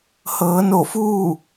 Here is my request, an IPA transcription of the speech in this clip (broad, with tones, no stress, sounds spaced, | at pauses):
h ɤː˩˧ n o˧˩ f uː˥˨